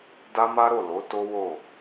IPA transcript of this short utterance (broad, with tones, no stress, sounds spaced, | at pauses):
d a˦ m a˦ ɾ o˦˨ l o˨˦ t o˦ w o˦˨